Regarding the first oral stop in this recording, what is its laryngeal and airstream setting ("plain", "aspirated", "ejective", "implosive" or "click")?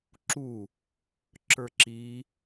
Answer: click